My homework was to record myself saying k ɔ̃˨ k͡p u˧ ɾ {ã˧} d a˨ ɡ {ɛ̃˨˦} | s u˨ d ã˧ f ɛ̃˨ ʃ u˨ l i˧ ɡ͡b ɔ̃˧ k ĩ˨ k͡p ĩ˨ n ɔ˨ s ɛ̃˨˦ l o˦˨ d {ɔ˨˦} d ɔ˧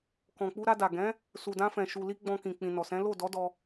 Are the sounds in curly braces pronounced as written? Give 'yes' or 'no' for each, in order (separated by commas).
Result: no, yes, yes